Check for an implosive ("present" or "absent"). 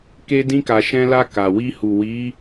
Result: absent